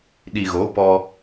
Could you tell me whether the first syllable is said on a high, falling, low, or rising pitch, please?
low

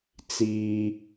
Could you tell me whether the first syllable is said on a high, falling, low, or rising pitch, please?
low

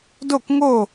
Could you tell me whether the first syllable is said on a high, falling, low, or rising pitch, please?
falling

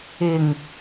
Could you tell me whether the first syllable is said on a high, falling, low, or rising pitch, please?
low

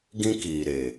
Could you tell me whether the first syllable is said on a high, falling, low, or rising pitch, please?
high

